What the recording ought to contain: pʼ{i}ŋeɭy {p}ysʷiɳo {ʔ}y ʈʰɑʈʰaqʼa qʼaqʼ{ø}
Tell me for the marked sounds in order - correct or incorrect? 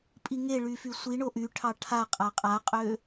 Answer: correct, incorrect: f, correct, correct

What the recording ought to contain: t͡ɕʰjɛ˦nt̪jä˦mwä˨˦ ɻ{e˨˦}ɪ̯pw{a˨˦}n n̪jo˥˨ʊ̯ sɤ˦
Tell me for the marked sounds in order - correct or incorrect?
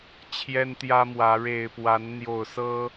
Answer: incorrect: e˨˩, correct

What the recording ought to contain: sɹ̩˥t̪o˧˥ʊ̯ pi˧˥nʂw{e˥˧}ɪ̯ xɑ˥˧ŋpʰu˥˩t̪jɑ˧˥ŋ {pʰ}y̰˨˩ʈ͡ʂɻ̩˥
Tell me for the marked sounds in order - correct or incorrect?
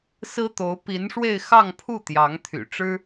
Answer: correct, incorrect: t̪ʰ

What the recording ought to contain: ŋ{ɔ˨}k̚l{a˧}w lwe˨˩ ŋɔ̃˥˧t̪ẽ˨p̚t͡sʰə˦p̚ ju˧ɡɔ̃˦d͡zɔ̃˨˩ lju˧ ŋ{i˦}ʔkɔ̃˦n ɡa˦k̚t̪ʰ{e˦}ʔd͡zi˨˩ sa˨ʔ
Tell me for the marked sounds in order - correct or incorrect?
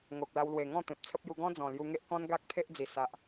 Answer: incorrect: o˨, correct, incorrect: e˦, correct

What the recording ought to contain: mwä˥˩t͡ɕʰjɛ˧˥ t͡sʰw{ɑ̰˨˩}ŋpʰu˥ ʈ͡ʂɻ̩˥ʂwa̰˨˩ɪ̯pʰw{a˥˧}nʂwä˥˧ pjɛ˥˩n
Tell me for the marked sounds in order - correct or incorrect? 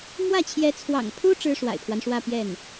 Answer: correct, incorrect: a˦

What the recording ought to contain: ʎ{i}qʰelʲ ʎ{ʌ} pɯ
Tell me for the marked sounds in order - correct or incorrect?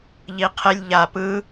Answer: correct, incorrect: a

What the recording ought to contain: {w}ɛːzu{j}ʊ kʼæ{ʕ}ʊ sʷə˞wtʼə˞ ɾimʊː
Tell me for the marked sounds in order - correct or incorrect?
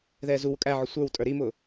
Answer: incorrect: ð, incorrect: w, correct

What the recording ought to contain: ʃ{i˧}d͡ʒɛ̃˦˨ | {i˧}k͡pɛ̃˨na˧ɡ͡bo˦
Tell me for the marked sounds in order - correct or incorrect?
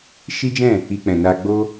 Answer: incorrect: i˦, correct

